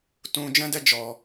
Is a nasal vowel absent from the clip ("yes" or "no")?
no